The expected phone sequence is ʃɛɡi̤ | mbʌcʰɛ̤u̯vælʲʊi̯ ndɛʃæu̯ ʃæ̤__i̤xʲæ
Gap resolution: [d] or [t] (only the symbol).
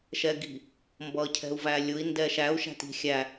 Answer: t